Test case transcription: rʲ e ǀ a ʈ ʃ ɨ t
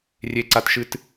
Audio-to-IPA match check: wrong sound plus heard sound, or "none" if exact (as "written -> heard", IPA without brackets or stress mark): ʈ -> t